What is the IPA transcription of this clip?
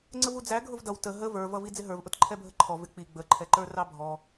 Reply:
ŋ͡ǀ ə v u d͡z æ ɡʱ ʊ v d ʌ w t ə ɦ ə v ə˞ v ʌ v i d͡z ɪ ɦ ə˞ v ʔ ʊ t ǃʰ ɛ bʱ ə ǃʰ ɔ v ɪ k͡p i ɡ͡b ə ǃʰ ɛ ǃ ə˞ r ɑ bʱ ɔ

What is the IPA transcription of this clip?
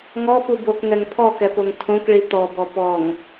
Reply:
ŋ ɔ p u b o k ŋ ɛ ŋ pʰ ɔ k ɛ p o ŋ tʰ õ k ɭ i t̪ ɔ b ɔ p ɔ ŋ

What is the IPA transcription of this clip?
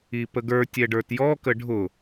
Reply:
i p ə ɡ ə˞ tʲ ɛ ɖ ə˞ t j ɔ k ə ɖʱ ʊ

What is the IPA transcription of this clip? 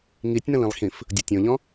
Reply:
ŋ i tʲ n ə̃ l ĩ lˠ x ĩ f | dʲ o tʲ õ ʎ ɔ̃

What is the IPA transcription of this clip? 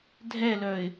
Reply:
dʱ ɛ l œ ɪ̯

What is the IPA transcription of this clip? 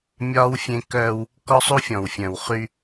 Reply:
mʲ ɒː˦ w fʲ ẽ˦ k œː˦ w | k ɔ˦ sˤ u˦ fʲ ɔ̃˨ w fʲ œ̃˨ w χ y˦

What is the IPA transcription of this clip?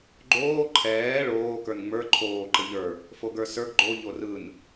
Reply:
ɡ͡ǃ oː ǃʰ ɛː ɭ oː k ə˞ n ŋ͡m ə˞ ǃʰ oː ǃ ə ʎ ə˞ | f o ɡ ə˞ s ə˞ ɡ ɡ͡ǃ o ʎ o r ɯ n

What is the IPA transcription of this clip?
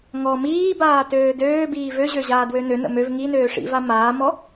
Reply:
ŋ ɔ m iː b aː t øː d øː b iː v ø ʑ ø ʑ aː d w ø n ø n ə̰ m ø v ŋ i n øː ʂ ḭ v a m aː m ɔ

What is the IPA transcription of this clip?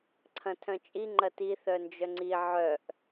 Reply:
ǀʰ ɐ̃ tʰ œ̃ t͡ʃʼ i ŋ͡ǃ ɐ t i θ œ n d͡ʒ œ ŋ͡ǀ i ʕ œ ʔ

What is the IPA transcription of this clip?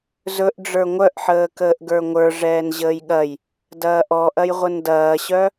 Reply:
z ɵ ʔ ɖ͡ʐ ə˞ ŋʷ œ ʔ ħ əː k əː ʔ ɡ ə˞ ŋʷ ə˞ ʐ ɛː n ʑ əː j ɠ ɐ j | d ɐː ʔ ɔ ʔ ɐ j ʁʷ ə n d ɐː ɕ œ

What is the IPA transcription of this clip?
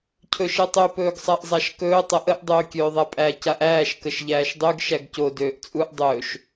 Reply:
cʰ ɵ ʃ ɛ tˤ ø p ɵː ɡ sˤ a ʔ zˤ a ʃ k ɵː tˤ ə ʔ ə ʔ dˤ øː kʲ øː ðˤ a pʼ æ c a ʔ æː ʃ k ə ʃ ʎ æː ʃ dˤ ø ɡ ʃ æ ɡ c o d øː ʔ t͡sʼ u ʔ dˤ ɵː ʃ

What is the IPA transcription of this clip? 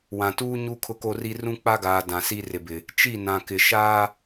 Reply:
w ã˨ t uː˦ ɲ u˦ kʰ ʊ˦ k o˦ r i˦ r ũ˦ k͡p a˦ ɡ aː˨ d ã˨ s i˦ r ɪ˨ b ɪ˨ | t͡ʃ i˦˨ n ã˨ k ɪ˨ ʃ aː˦

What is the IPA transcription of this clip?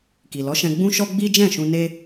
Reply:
k i˨ l ɔ˨˦ ʃ ɛ̃˧ ɡ͡b ũ˦ ʃ ɔ˦ ɡ͡b i˦ d͡ʒ ɛ̃˦˨ ʃ ũ˧ n e˦

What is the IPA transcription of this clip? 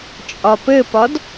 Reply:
t͡ʃʼ ɒ p ɘ p ɒ d

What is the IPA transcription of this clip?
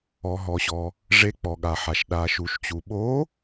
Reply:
ɔ˩ ɦ ɔ˩ ɕ ɔ˩ | ʐ e˨˦ k͡p ɔ˩ ɠ a˩ ħ a˩ ʃ ɗ a˩ ʃ u˩ ʃ t͡ɕ u˩ ɓ o˨˦

